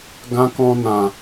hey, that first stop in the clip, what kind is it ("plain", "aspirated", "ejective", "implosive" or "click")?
plain